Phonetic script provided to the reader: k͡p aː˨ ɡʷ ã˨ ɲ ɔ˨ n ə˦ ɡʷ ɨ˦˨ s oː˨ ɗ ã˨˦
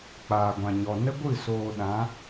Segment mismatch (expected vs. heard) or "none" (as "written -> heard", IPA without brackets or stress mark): none